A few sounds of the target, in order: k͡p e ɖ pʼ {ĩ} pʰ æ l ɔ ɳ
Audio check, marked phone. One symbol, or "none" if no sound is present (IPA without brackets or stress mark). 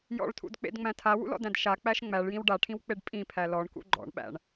ĩ